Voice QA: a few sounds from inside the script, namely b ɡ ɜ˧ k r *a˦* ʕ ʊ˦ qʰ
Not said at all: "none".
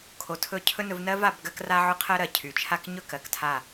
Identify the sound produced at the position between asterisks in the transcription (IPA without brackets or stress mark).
a˦